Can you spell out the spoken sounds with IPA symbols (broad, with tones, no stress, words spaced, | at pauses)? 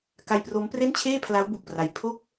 ka˧jpro˦˥mpre˥˩nt͡ɕʰeː˥˩ pʰla˦˥wbu˨˩k̚pra˨˩j pʰo˥˩k̚